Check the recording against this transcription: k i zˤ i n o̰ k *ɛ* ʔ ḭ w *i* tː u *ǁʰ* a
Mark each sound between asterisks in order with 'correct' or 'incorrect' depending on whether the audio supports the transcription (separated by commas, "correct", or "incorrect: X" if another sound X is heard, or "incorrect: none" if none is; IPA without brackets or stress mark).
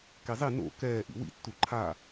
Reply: incorrect: ɛː, incorrect: ḭ, incorrect: ǃʰ